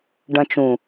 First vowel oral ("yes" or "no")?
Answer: no